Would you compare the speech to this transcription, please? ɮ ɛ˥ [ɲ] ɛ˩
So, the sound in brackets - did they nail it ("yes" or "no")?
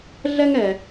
no